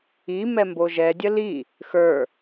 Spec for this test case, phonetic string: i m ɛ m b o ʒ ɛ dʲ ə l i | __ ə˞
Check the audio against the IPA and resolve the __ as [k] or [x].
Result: x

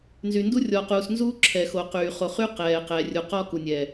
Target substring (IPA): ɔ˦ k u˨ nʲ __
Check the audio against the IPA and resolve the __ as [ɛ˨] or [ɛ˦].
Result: ɛ˨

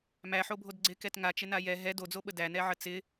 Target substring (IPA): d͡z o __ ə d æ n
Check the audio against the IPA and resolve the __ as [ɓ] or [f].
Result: ɓ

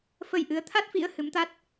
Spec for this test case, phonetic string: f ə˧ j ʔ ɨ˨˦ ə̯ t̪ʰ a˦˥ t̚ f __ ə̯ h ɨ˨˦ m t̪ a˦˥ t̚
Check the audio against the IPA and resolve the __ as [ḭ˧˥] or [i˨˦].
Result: ḭ˧˥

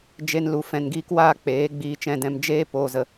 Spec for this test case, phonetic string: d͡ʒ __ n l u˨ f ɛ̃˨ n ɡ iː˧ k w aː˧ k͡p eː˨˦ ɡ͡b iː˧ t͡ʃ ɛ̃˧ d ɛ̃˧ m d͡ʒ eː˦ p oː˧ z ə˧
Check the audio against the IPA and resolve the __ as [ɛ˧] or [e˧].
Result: e˧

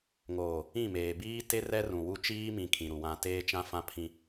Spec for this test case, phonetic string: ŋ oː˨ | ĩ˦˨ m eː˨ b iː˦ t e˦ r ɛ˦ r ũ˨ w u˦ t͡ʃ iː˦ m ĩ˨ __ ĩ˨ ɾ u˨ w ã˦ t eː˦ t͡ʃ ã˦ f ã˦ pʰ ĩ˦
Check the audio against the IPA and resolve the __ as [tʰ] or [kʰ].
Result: kʰ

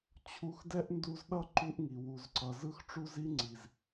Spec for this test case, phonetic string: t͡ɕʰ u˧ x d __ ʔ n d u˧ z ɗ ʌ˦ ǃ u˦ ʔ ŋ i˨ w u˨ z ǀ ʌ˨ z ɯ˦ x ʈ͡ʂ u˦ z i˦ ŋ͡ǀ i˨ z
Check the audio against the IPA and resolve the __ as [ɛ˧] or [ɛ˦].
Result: ɛ˦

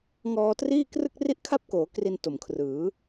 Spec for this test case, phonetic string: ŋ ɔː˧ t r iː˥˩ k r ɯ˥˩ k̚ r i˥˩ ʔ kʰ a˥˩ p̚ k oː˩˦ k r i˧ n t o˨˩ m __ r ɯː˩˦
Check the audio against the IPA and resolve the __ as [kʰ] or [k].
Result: kʰ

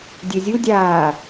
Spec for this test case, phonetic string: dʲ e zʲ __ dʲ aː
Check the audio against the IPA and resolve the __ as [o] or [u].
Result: u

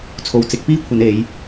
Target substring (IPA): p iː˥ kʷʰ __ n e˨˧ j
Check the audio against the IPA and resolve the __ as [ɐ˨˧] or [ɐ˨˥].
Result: ɐ˨˧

